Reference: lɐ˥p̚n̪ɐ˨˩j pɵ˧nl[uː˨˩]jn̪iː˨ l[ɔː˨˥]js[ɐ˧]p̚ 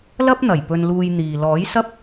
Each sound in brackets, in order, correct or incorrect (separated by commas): incorrect, correct, incorrect